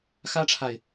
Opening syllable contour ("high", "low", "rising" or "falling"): high